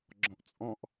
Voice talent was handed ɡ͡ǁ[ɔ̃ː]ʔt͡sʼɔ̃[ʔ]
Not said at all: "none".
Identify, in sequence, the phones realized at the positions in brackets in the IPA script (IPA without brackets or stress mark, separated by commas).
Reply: ɔ̃, ʔ